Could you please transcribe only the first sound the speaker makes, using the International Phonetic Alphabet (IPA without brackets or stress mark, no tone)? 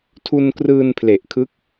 tʰ